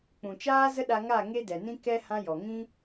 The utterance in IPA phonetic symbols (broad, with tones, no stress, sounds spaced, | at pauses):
k͡p ũ˨ t͡ʃ aː˦ z ə˦ ɗ a˧ ŋ a˦˨ ŋ e˦ d ɛ˨ n ĩ˦ k ɛ˦ h ã˦ j ɔ˨ ŋ ĩ˦